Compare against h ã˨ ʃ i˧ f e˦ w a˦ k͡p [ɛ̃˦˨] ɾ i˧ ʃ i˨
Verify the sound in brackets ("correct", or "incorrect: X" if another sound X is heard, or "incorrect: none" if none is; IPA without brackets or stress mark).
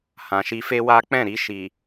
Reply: correct